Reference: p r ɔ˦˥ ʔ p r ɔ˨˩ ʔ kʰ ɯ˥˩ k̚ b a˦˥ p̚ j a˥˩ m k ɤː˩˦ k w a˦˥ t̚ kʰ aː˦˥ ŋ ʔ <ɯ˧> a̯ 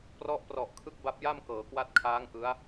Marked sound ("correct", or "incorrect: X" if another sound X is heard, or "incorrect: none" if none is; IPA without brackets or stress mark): incorrect: ɯ˦˥